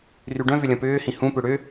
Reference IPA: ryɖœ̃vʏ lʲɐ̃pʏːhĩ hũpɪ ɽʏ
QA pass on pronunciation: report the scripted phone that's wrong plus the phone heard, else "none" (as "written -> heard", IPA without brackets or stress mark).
ɪ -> ʏ